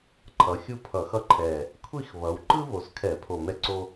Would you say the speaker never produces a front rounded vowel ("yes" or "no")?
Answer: yes